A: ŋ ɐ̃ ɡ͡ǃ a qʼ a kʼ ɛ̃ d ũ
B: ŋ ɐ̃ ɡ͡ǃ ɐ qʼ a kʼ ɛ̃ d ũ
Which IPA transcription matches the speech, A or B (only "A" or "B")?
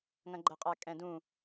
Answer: B